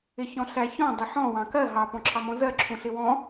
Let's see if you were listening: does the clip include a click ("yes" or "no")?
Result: yes